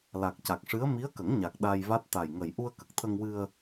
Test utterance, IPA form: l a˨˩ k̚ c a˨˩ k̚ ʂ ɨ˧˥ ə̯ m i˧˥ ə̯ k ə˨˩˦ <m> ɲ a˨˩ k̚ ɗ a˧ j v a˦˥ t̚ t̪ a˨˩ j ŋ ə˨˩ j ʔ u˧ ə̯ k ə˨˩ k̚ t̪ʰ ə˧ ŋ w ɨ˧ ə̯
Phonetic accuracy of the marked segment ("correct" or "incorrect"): incorrect